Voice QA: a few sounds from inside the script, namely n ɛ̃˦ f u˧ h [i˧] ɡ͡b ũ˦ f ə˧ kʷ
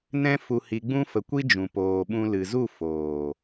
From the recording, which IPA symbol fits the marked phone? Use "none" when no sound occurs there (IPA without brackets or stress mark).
i˧